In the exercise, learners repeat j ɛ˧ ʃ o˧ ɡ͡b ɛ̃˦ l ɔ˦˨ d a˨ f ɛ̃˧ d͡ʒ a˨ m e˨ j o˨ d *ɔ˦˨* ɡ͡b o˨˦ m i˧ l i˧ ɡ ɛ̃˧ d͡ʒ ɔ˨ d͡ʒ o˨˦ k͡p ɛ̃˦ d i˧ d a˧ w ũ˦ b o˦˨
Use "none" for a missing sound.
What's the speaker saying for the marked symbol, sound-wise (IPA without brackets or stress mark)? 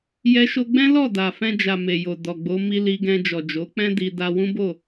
ɔ˨